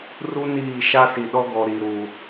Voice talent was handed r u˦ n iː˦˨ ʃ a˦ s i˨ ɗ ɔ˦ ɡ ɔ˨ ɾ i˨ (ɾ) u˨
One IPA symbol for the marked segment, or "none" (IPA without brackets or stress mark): ɾ